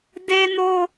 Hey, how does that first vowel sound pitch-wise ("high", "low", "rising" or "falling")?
high